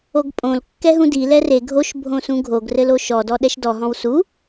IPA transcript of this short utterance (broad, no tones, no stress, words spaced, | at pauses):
oɡpʼõl kːɛɦũdi lɛre ɡʱoʃ bʱõsũɡʱoɡ rɘloʃɔ dɔɗɛʃdɔ ɦɔ̃wsu